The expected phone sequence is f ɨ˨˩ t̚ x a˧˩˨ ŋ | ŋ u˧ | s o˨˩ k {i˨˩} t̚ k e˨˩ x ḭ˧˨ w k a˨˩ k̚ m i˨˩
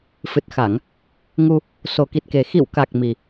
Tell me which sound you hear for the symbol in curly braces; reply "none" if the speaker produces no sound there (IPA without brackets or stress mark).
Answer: i˨˩